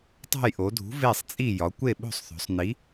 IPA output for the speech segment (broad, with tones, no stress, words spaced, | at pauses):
tˤo̤˦˨jʔo˩˧dʱṳ˨˥ ve˦˨sˤt͡sʼi˦˨ jɒ˩˧kʷe˦˨ɓo̤˦˨sˤθo̤˩˧sˤ ni˨˥